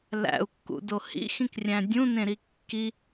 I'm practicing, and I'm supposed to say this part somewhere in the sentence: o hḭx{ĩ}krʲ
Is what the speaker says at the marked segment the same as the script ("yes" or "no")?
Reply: yes